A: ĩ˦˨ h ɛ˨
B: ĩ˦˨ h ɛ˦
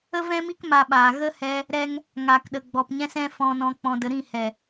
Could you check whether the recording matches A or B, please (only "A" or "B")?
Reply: A